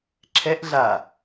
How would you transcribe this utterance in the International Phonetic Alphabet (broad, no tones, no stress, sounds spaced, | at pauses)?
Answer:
ǁʰ ɛ ʔ ɮ a